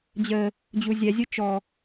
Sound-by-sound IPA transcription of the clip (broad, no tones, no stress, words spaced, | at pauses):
d͡ʑə | d͡ʑuzʲɛ zʲɯt͡ʃɔ